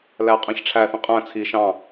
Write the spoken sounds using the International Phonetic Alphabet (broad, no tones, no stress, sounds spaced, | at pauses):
l æ qʼ æ̃ ç ʈ͡ʂʰ æ θ ĩ qʼ æ̃ t͡sʰ i ʃ ɑ̃